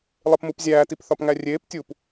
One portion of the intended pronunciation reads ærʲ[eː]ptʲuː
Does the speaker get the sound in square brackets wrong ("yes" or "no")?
no